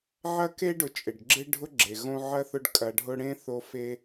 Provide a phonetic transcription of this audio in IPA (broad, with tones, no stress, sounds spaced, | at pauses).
ʕ ɐ˥ k e˥ ɖ ʊ˨ t͡ʃʼ ɪ˩ ɖ ɡ͡ǁ ɪ˥ ɖʱ ʊ˦ ɡ͡ǁ e˩ ɣ õ˦ ʕ ɐ˥ θ ʊ˦ ɖ kʼ ɐ˨ ɖʱ ʊ˦ ɽ ẽ˥ θ o˦ f e˦